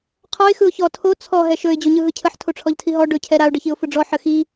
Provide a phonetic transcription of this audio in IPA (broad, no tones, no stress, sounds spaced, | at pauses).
qʰ ɔ ɪ̯ x ɯ ʊ̯ ç ɔ tʰ o t͡sʰ ɔ ɦ ɛ ʃ ɵ ɪ̯ d͡ʑ o ɲ ɯ ɦ ɯ cʰ ə ħ tʰ o ʈ͡ʂʰ ɔ ʎ tʰ i ɦ ɔ ɖ ɵ cʰ ɛ ɾ a ʊ̯ ɖ ə ç i ʊ̯ f ɯ ɖ͡ʐ ɔ ħ ə x i